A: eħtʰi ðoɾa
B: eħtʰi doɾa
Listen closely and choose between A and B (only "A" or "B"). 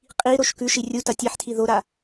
A